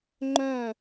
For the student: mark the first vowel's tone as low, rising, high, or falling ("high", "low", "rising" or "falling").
falling